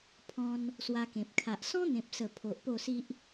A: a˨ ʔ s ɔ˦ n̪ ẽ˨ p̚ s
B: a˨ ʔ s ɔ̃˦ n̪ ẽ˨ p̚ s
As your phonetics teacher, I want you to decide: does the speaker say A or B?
B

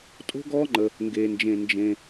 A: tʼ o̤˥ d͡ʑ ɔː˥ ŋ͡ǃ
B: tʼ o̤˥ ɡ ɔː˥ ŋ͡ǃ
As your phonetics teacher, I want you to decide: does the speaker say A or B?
B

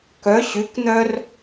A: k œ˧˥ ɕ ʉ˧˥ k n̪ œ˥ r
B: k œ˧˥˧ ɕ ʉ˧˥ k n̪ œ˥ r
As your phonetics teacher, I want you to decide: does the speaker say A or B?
A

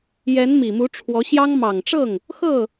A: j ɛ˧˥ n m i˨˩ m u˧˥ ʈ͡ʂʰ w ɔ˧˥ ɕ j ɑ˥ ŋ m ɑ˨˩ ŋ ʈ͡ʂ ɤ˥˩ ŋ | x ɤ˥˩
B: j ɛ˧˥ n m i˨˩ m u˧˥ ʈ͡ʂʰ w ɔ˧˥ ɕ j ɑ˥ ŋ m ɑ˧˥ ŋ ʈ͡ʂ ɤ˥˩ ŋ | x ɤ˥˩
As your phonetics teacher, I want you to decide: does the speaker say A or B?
A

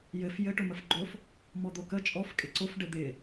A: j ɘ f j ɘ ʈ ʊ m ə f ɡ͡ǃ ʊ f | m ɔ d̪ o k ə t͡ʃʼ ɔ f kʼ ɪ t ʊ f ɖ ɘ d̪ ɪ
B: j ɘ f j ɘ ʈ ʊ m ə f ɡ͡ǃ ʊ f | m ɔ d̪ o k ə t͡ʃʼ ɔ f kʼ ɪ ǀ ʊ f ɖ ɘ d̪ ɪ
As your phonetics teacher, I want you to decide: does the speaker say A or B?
B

